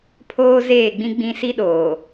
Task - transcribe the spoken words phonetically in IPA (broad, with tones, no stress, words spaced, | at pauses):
pʰoː˦ zeː˦˨ɡ͡bĩ˦ɡ͡bĩ˦ si˦ ɗoː˨